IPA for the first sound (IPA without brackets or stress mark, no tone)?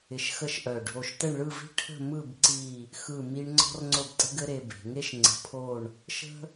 ɪ